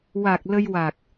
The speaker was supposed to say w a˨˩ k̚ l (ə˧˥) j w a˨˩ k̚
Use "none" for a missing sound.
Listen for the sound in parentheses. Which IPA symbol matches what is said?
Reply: ə˧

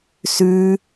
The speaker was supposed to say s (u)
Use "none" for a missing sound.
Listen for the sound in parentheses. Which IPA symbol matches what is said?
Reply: ʉ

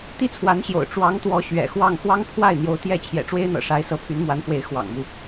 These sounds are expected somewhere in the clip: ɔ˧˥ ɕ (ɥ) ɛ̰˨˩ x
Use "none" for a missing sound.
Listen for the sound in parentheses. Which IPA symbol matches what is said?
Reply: ɥ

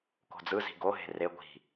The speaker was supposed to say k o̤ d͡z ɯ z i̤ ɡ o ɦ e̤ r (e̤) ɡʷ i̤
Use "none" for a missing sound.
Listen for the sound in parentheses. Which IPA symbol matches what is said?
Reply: e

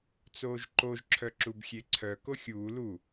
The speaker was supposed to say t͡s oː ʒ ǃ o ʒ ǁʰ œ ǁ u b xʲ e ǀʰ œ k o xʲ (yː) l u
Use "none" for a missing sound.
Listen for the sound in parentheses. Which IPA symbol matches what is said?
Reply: uː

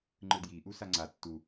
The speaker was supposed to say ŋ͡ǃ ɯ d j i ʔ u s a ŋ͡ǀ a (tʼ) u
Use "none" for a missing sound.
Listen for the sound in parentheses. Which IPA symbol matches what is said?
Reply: tː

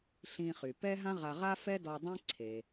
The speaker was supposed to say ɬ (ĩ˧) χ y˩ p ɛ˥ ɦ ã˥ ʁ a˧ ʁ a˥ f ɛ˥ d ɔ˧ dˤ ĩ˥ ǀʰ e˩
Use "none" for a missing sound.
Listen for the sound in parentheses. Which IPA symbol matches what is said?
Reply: ĩ˧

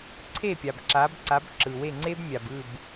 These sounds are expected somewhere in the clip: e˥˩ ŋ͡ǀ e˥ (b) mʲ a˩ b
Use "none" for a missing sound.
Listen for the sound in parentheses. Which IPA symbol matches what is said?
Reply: b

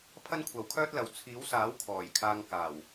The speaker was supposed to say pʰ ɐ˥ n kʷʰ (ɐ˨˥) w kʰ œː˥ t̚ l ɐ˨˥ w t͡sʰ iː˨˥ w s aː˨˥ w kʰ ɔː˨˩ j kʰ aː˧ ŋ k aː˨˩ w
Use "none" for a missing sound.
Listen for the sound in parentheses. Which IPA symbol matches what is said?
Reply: ɐ˨˥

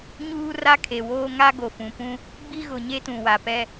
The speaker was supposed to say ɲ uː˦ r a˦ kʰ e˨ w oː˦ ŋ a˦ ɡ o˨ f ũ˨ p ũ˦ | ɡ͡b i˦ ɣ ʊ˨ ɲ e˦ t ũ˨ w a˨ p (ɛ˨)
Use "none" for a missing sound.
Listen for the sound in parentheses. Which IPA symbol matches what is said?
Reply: ɛ˦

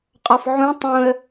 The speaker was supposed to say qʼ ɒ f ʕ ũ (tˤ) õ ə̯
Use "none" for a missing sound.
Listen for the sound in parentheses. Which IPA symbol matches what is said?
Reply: tˤ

